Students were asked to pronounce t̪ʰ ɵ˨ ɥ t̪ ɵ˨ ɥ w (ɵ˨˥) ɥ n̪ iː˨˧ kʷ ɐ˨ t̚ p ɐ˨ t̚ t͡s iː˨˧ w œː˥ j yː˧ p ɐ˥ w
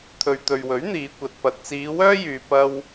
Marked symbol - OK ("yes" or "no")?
yes